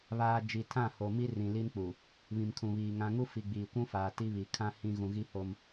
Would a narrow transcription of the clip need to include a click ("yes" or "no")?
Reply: no